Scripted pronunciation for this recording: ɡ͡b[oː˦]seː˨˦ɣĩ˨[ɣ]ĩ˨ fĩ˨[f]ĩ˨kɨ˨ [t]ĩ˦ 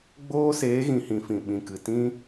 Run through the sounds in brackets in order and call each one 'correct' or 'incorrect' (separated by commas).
correct, incorrect, incorrect, correct